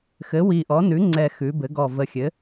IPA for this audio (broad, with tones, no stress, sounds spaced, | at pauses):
x ɘ˩˥ w i˨˩ ʔ ɔ˩˥ n ʉ˩˥ ŋ͡ǀ ɛ˨˩ x ʉ˩˧ b ɘ˩˧ ɡ ɔ˨˩ v ə˨˩ xʲ ɘ˩˥